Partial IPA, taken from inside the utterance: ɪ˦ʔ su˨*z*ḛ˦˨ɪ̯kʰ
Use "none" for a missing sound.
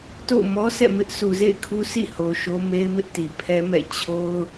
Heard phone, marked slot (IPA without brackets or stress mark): z